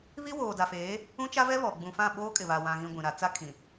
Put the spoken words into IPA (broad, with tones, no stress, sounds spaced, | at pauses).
β i˦ w oː˨ d a˨ f eː˨˦ | ũ˦ t͡ʃ a˦ v ɛ˦ β ɔ˨ ɡ͡b ũ˨ f ã˦˨ ɓ oː˦ kʼ ɪ˨ β a˨ w ã˨ ɣ ĩ˨ ɡʷ ĩ˨ ɾ a˨˦ t͡s a˦ kʰ ĩ˨